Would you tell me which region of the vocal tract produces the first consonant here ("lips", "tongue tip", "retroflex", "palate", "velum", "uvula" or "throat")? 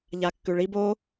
palate